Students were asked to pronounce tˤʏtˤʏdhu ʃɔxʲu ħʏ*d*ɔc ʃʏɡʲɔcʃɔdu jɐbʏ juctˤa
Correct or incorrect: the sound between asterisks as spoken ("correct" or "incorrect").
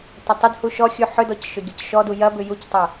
correct